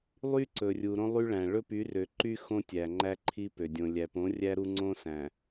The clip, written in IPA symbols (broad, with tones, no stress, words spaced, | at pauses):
lˠy˦ǀɵ˨rʲu˨ ɾõ˦lˠy˦ɭæ̃˨ ɭɵ˦py˨˦rø˨ǃy˦ xõ˦tʲæ˨ŋ͡ǃæ˦ ǃʰi˦pø˨ dʲõ˨lʲæ˨põ˨˦ rʲæ˦ɾu˦ŋ͡ǀõ˦ sæ̃˨